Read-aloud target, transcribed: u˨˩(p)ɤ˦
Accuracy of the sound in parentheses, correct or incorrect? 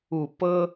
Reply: correct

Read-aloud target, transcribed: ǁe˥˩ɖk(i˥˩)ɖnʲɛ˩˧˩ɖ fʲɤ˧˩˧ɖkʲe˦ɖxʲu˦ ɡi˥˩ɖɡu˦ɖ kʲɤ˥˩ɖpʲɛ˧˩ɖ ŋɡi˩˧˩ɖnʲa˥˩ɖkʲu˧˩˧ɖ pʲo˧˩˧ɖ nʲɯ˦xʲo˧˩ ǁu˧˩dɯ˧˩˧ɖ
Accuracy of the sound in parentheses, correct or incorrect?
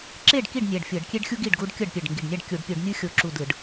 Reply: correct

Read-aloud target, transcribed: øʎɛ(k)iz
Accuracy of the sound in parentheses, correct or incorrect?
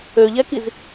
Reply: correct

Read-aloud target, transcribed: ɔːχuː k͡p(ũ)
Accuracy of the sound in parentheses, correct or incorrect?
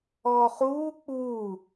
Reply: incorrect: u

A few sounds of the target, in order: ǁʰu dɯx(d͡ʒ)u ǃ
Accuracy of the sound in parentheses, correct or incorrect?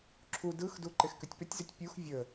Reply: incorrect: d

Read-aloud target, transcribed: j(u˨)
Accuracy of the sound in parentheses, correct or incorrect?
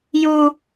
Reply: incorrect: u˦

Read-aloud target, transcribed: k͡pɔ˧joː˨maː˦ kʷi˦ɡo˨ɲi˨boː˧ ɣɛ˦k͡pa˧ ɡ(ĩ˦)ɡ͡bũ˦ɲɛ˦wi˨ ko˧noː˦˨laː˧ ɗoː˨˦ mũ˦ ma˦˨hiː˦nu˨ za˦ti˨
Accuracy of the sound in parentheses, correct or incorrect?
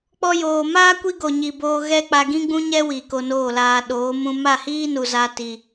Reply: correct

